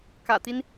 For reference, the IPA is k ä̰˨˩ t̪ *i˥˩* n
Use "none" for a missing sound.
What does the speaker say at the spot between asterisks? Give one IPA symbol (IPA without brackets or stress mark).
i˦